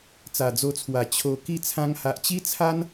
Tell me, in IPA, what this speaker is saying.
t͡s a˨˩ d͡z o˧ t͡sʰ w a˨˩ t͡ɕʰ o˧ k i˥˧ t͡sʰ ã˧ ŋ h a˨ ʔ t͡ɕ i˦ t͡sʰ a˦ n

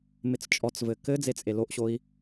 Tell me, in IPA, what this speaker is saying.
m ɪ t͡s t͡ʃʼ ɔ t͡s v ɘ k ɘ d͡z e t͡sʼ e l o ʔ ɕ o i̯

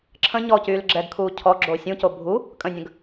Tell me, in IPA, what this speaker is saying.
ǁʰ ə̃ ɲ ɔ c yː l ɡ͡ǁ ɛ ɡ kʰ uː cʰ ɔ ɡ͡ǁ o sʲ ũ c o bʱ u | kʼ ə̃ nʲ ə̃ ɡ

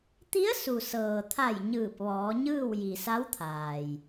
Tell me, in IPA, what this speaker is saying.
t̪ i˧˥ ə̯ s u˩ s ɤː˩ t̪ʰ a˧˩ j ɲ ɯː˧˩ p̚ ʋ ɔː˩˧ ɲ ɯː˥˨ w j i˩ s a˧˥ w t̪ʰ aː˩ j

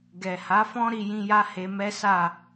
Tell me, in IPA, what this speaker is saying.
ɡ ɛ˨ h a˨˦ f ɔ̃˦ ɾ i˧ j ĩ˧ j a˦ h e˧ m ɛ˦ s a˦˨

